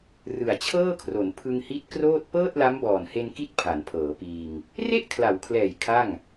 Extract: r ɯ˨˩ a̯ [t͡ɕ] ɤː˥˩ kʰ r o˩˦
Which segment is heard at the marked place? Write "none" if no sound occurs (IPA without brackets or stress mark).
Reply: t͡ɕʰ